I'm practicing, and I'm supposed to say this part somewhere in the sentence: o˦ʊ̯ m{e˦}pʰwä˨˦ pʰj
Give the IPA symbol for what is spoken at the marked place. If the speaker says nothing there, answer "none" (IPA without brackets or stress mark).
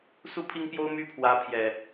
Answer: y˦